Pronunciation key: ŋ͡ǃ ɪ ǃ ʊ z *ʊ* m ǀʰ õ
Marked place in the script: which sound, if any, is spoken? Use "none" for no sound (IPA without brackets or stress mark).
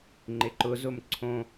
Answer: ʊ